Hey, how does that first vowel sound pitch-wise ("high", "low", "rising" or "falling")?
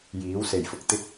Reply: rising